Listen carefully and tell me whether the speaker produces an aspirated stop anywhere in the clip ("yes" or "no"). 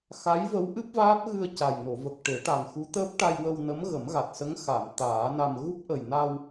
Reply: no